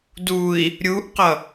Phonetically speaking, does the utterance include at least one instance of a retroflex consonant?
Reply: no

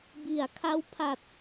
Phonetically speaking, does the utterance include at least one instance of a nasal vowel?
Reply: no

